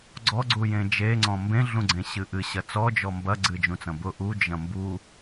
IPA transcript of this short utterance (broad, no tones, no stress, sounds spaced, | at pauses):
ɡ͡ǀ ɔ ɡ͡ǀ u j ẽ d͡ʒ e ŋ͡ǀ ɔ̃ m b ẽ ɮ ũ ɡ͡ǀ ẽ ɕ ɨ ʔ ɨ ɕ ɐ t͡s ɔ d͡ʒ ɔ m b ɐ ɡ͡ǀ ɨ d͡ʒ ũ t͡s ɐ̃ b ʊ ʔ u d͡ʒ ɐ̃ m b u